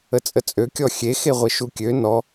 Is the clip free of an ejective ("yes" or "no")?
no